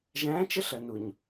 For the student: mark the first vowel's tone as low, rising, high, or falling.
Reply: rising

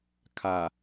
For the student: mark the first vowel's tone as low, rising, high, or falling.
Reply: low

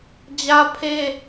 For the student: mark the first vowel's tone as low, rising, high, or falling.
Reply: high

